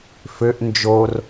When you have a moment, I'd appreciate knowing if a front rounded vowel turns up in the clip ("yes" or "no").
yes